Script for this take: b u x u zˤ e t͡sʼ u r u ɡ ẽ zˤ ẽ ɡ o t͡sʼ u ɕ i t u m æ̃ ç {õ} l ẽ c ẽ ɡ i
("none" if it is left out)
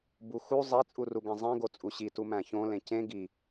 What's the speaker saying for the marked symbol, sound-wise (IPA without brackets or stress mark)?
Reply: õ